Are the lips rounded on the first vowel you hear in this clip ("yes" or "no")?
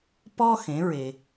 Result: yes